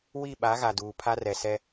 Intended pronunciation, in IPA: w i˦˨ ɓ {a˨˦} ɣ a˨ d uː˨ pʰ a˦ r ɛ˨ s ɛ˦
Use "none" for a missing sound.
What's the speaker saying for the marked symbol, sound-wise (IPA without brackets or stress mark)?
a˨˦